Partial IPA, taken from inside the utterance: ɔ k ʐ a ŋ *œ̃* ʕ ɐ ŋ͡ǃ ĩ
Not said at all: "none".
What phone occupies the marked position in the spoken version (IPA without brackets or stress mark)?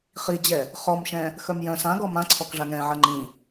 ɛ̃